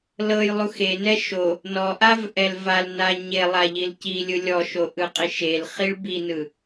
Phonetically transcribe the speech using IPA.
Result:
l ɤ j lˠ u x e n ɛ ʃ o | n ɔ ʔ a v ʔ ɛ l v a l n a ɲ e lˠ a ʎ i l c i lʲ ɯ lʲ ɔ ʃ o ʔ ɯ qʼ i ʃ e l χ i ɭ b i n ɯ

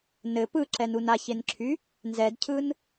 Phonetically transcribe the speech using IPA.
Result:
n ɘ p ɯ ǁ ɛ n u n a ç e n ǁʰ y | n z ɛ d cʰ ɯ n

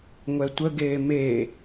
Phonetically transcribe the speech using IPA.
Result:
ŋʷ ɛ tʷ ə ɡ eː m e

